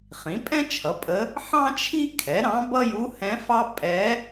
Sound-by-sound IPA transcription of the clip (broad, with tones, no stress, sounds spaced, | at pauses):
χ ĩ˩˥ pʼ ɛ̃˥ t͡ʃʰ ʌ˩˥ pʼ ə˧˥ | ħ ɑ̃˥ t͡ʃʰ i˥ kʰ ɛ˩˥ ɾ ɑ̃˧˥ b ʌ˥ j u˧˥ h ɛ̃˧˥ f ɑ˥ pʼ ɛ˧˥